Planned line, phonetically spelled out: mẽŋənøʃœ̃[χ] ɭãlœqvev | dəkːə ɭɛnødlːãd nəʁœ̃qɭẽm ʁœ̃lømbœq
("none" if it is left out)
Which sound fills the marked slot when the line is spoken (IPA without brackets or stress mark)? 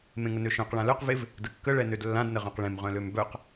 q